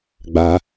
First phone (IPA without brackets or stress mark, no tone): ɡ͡b